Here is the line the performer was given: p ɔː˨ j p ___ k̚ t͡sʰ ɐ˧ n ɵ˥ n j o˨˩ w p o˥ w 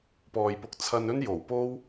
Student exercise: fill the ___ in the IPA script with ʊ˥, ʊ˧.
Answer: ʊ˧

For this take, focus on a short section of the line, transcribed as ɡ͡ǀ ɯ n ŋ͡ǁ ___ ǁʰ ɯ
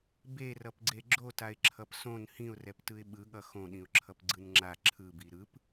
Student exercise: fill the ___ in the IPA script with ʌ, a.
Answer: a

